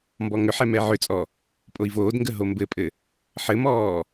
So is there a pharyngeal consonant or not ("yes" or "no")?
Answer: yes